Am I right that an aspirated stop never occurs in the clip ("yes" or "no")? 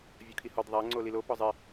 no